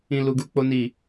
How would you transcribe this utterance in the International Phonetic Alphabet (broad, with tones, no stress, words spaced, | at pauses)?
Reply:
ĩ˧lu˧ɡu˧ k͡po˦ni˦˨